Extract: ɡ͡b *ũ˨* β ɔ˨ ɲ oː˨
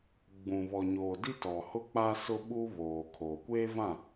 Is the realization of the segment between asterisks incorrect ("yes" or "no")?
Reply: no